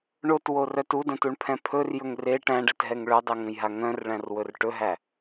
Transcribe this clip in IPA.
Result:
ɳ o t w o r œ t u d ə̃ t u ɳ pʰ ɛ̃ pʰ ɵ r j ɵ ŋ r e ʈ æ̃ ɖ ɛ t ɦ ɛ ŋ ɭ œ dˤ e ŋ ə̃ j ɦ a ŋ œ̃ r ɭ æ̃ r w ɵ r ʈ ɵ ɦ æ

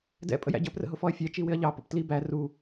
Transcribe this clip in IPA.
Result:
d ɛ̰ pʼ ə̰ j æ̰ ɟ ə p r ə̰ ɦ ʊ f ɔ ɐ̯ fʲ æ t͡ʃ i w ɪ ɐ̯ ʎ ɑ p ə̰ p t l i b æ r u

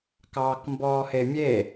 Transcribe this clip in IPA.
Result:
k ɑː k m b ɔː h e mʲ e

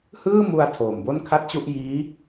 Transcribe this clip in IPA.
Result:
h ɯː˥˩ m u˧ a̯ tʰ oː˨˩ m b o˥˩ n kʰ a˥˩ t̚ t͡ɕ u˥˩ ʔ j iː˦˥

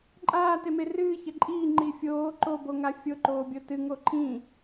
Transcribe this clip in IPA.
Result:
ǃʼ aː t e m e r ɨː ç ɐ ǃʼ iː ŋ͡ǃ i fʲ oː ǃ o b o ŋ a fʲ o ǃ oː bʲ o t ɨ ŋ o ǃʰ ĩ

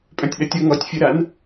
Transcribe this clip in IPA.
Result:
pʼ œ̃ tʲ ɗ ɐ tʲ ʌ ŋ ɔ tʲ fʲ ə ɾ a n

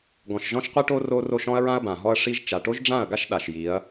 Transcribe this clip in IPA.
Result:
ɡ ɔ̃˨ ʃ ʒ ɔ̃˦ ʃ qʷ i˦ ʈ o˦ r o˦ r o˦ ʃ ɔ̃˦ ɐ̯ ɹ ã˦ ɐ̯ b ã˨ ɦ ɔ˦ ɐ̯ ʂ i˦ ʒ t͡ʃ a˨ ʈ o˦ ʒ ɖ͡ʐ ã˦˨ ɐ̯ ɡ a˦ ʃ ɗ a˨ ʃ j i˨˦ ɐ̯

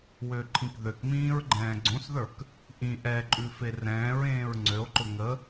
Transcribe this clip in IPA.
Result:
w ø ǃʰ ĩ k ð ø k m ĩː ɹ ɡ͡ǃ ɛ̃ː ɡ͡ǀ õ s ð ə˞ k | ʔ ĩ ʔ ɛ ǃʼ ʉ f e r ɛ̃ː ɹ ẽː ɹ ŋ͡ǀ ø o̯ ǃ ʊ ŋ ə

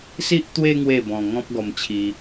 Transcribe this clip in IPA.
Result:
s i˦ ʔ t̪ w e˦ ŋ w e˥˧ b ɔ̃˧ ŋ ɔ̃˦ p̚ ɡ ɔ˧ m t͡ɕʰ i˧

